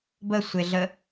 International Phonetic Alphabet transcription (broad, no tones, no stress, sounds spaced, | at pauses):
b ə sʷ e ɮ ə